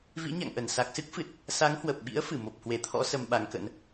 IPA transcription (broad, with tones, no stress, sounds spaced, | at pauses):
v ḭ˧˥ ɲ a̰˧˨ ŋ ʔ ə˧˩ n s a˨˩ k̚ s ɨ˦˥ k̚ f ɨ˨˩ t̚ | s a˨˦ ŋ h w ə˨˩ p̚ ɓ ḭ˧˥ ə̯ f ɨ˧˩ m o˨˩ p̚ h w e˨˩ t̪ʰ ɔ̰˧˥ s ə˧ m ɓ a˨˦ ŋ k ə̰˧˥ n